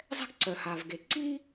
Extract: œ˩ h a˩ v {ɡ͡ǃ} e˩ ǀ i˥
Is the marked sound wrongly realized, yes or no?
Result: yes